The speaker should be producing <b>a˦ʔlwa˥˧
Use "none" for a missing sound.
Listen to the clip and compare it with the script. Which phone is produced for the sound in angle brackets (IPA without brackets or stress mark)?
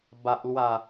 b